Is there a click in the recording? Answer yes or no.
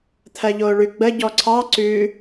yes